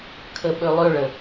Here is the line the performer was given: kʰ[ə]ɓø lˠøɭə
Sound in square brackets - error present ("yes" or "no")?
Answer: no